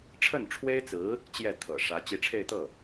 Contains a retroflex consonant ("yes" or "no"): yes